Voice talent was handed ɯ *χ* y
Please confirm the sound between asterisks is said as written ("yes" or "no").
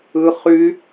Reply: yes